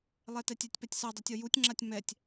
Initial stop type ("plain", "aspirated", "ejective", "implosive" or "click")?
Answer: plain